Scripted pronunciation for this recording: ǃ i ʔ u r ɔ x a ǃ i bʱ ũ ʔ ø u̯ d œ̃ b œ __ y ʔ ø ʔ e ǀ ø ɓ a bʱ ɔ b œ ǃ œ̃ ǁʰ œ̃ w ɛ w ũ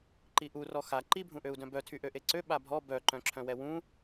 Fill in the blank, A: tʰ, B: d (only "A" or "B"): A